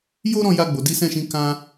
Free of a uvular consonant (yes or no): yes